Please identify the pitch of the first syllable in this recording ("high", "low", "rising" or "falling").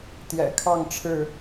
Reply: low